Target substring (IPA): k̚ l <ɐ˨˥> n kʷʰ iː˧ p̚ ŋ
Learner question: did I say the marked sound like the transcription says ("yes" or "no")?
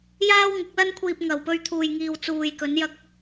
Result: no